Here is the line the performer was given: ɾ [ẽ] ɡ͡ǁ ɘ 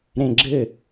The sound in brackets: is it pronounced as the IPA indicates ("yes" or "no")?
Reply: yes